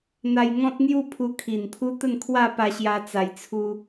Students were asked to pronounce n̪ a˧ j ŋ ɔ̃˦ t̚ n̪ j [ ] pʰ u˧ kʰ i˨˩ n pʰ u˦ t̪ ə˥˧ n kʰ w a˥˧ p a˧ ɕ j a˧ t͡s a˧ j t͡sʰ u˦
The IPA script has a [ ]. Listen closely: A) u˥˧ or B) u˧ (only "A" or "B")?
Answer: A